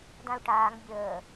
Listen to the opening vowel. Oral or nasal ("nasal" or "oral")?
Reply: nasal